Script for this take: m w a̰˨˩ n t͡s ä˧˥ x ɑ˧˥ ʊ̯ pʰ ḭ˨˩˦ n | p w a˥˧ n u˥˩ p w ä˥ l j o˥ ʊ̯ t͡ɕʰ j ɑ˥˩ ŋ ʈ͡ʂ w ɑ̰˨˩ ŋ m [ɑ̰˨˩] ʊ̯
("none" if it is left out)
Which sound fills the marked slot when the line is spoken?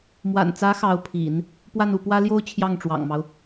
ɑ˦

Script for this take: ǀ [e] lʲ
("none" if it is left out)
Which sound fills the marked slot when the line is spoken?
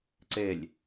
e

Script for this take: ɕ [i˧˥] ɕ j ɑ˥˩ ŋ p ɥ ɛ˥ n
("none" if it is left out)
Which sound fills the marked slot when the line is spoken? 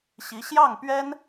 i˧˥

